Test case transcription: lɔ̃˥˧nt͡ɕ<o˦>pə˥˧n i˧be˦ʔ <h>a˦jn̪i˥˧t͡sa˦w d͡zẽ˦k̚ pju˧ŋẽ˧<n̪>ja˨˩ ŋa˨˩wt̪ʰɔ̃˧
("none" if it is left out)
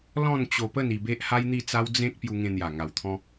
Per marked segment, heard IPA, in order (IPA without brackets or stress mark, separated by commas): o˧, h, n̪